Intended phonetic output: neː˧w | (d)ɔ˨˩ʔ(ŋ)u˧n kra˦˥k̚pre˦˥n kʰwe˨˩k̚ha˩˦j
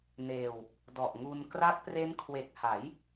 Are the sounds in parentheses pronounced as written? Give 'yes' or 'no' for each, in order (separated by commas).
yes, yes